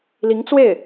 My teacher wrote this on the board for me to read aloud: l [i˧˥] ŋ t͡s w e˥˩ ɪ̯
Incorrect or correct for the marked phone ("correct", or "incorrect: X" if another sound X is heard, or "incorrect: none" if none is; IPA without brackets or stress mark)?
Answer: correct